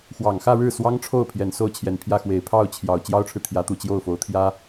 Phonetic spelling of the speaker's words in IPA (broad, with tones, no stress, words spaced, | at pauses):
xwɑ˨˩ŋxä˥˧ɻɻ̩˥˩ swɑ˥ŋʈ͡ʂʰo˥˩ʊ̯ pʰjɛ˨˩nso˥˩ʊ̯t͡ɕʰjɛ˨˩npʰjä˥˩ xwe˨˩ɪ̯pʰɑ˥˩ʊ̯t͡ɕʰjɑ˨˩ʊ̯ t͡ɕjɑ˥ʊ̯ʈ͡ʂʰɻ̩˨ t̪ʰjä˧˥t̪u˨˩ t͡ɕjo˥˩ʊ̯fo˧˥ʊ̯t̪ʰjä˥